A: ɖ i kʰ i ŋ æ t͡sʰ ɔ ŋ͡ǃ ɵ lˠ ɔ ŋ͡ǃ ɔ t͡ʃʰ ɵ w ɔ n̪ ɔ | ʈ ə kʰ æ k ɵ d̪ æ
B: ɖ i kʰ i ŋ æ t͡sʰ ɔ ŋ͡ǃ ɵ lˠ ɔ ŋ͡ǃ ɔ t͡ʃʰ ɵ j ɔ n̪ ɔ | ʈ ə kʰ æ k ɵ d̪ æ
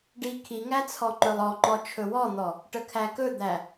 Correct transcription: A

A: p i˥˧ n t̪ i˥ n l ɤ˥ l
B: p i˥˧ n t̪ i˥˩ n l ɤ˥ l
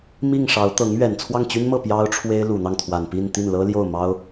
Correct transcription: B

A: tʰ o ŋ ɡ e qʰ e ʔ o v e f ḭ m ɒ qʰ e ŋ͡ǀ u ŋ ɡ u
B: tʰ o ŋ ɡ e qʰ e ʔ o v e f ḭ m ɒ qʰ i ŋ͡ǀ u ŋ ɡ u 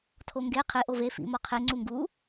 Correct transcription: A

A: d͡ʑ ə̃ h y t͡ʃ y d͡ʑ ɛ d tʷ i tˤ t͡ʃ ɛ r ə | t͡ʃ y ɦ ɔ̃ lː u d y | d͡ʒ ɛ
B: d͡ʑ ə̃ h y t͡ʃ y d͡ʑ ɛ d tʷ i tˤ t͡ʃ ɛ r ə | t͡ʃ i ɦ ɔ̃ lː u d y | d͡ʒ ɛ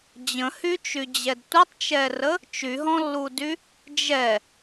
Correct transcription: A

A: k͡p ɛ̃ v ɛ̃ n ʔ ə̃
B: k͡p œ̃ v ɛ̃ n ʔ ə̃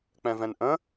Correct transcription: A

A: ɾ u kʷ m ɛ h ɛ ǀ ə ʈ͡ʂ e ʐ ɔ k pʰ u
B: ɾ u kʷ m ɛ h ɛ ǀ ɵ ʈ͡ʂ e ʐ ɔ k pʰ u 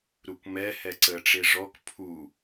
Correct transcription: A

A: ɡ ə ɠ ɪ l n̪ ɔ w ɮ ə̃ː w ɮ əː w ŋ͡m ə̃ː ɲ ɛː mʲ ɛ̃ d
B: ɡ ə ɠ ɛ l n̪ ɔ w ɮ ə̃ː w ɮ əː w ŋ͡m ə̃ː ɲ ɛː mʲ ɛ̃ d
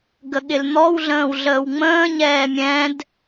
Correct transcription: A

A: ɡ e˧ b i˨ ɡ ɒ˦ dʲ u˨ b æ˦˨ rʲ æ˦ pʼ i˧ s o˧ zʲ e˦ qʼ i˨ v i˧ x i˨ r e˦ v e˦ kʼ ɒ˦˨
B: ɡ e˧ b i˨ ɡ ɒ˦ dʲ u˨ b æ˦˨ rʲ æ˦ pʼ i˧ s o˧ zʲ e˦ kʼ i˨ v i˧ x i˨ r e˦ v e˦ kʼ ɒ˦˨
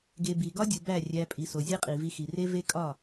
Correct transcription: A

